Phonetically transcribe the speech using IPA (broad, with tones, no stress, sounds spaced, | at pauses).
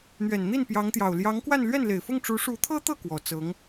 n̪ ɥ ɛ˨˩ n n̪ i˥˩ n p j ɑ˧˥ ŋ t̪ j ɑ˨˩ ʊ̯ l j ɑ˧˥ ŋ k w a˥˧ n l ɥ ɛ˥˩ n l e˨˩ ɪ̯ f ʊ˥˩ ŋ ʈ͡ʂ u˧˥ ʂ u˧˥ t̪ʰ ɤ˥ t̪ ɤ˥˩ k w ɔ˨˩ t͡s ɤ˧˥ ŋ